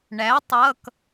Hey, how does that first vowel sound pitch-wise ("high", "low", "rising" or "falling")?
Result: rising